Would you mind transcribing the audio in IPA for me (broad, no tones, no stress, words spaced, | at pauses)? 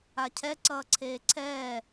acʰɛ ǀʌːǀʰeːǀʰɛː